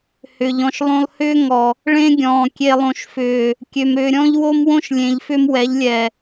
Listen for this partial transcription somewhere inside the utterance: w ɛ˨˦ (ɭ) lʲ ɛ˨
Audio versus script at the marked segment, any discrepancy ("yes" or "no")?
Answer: yes